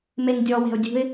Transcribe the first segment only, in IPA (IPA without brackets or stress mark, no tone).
m